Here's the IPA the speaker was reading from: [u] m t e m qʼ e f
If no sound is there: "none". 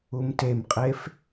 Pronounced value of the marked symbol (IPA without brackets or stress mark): u